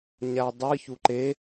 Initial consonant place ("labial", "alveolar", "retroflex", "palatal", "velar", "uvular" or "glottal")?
palatal